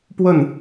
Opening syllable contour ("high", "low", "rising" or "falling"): falling